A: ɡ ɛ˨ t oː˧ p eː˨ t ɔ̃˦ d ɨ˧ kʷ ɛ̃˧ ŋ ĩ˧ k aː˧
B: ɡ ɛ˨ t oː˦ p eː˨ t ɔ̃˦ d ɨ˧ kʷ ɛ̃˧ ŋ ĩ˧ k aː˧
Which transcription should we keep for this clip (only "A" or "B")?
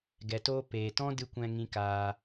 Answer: A